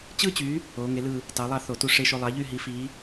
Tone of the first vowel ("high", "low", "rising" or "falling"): high